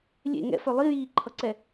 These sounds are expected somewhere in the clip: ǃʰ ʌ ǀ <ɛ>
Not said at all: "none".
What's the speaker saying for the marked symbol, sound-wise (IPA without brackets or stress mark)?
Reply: ɛ